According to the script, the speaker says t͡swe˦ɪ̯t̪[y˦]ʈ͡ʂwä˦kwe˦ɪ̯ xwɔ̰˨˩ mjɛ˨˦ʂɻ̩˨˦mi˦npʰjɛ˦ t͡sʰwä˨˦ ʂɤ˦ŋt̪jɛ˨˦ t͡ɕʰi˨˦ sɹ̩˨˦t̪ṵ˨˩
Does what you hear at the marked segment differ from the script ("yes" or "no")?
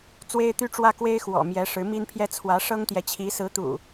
no